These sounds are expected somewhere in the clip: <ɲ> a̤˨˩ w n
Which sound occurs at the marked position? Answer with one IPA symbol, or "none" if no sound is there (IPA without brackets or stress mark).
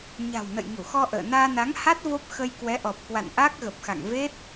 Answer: ɲ